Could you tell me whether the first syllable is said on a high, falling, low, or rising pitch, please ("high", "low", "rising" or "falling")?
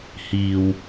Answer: low